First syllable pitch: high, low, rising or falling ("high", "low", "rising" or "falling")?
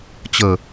low